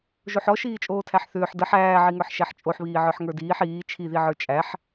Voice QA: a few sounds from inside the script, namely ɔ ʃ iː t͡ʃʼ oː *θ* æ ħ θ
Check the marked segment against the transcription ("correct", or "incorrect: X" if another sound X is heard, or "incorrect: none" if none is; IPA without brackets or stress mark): incorrect: tʰ